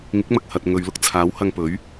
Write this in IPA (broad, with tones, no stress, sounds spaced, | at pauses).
ŋ ɪ˨˥ k̚ m ɐ˨ k̚ h ɐ˨ t̚ ŋ ɵ˨˧ ɥ l ʊ˧ k̚ t͡sʰ aː˨˥ w h ɐ˧ ŋ p ɵ˨˥ ɥ